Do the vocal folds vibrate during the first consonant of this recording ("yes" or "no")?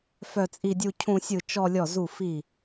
no